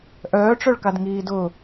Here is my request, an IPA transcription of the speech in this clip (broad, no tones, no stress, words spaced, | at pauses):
ʔœːʈ͡ʂœɭkadŋiː dʊ